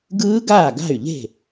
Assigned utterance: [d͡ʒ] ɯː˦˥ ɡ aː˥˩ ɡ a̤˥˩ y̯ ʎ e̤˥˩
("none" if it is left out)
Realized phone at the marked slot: ɡ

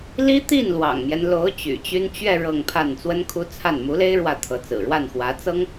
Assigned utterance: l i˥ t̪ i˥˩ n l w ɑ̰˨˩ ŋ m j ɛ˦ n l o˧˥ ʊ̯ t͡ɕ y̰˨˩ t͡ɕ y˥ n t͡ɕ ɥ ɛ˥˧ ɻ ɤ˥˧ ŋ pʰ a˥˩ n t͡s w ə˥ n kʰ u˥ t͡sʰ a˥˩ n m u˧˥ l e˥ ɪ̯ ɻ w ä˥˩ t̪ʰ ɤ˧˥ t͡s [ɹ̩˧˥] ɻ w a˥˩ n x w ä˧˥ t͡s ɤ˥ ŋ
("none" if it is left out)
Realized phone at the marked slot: ɹ̩˨˩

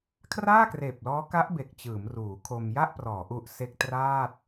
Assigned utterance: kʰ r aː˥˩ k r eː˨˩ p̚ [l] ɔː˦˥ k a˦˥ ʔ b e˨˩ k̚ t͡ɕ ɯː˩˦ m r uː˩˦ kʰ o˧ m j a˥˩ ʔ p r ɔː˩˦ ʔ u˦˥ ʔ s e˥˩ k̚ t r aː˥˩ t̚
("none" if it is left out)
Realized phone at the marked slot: l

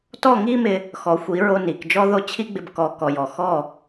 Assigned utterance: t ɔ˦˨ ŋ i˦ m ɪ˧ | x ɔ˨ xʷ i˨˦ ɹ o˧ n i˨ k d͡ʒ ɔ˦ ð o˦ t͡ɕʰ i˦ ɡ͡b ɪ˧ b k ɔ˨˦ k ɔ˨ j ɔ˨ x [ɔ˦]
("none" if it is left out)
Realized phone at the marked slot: ɔ˦˨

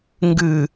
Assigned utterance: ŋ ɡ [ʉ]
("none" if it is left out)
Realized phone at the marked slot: ɨ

